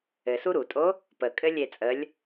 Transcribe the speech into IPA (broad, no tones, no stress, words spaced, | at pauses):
ɘsu ɾutʼo | pəkʼɘ lʲe t͡sʼəlʲ